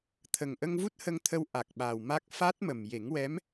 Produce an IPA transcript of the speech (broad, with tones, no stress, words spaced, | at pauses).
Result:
t̪ʰə˨˩ŋʔə˧ŋvu˦˥t̚ hə˧ŋt̪ʰə˧w ʔa˨˩k̚ɓa˨˩wma˦˥k̚ fa˦˥t̚ mə˨˩mje˨˩˦ŋwɛ˧˥m